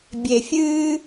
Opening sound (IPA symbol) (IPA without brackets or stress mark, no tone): bʲ